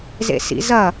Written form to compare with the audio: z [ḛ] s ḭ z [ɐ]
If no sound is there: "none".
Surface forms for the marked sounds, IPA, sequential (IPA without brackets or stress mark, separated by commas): ḛ, ɐ